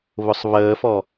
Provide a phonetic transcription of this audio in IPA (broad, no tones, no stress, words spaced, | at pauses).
βʊsˤβəːfɔ